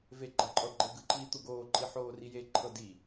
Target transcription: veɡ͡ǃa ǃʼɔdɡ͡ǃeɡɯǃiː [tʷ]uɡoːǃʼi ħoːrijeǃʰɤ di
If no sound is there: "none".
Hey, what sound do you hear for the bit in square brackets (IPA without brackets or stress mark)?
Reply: t̪